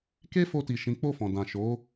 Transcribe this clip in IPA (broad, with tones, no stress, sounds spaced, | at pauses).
k e˦ f o˧ t i˨ ʃ ĩ˨˦ k͡p o˦˨ f ɔ̃˨ d ã˨ ʃ o˨˦